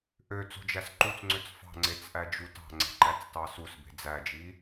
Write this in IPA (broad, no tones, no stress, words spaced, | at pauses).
ʔø t͡so̤d͡ʒæsǃut͡sŋ͡ǀøt͡s fɑ̤ŋ͡ǀet͡s ʔæd͡ʒutɑ̤ŋ͡ǀe̤ ǃæt͡stɑsusbe̤ d͡zæd͡ʒi